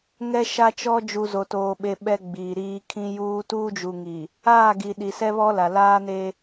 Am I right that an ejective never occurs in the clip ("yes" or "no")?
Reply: yes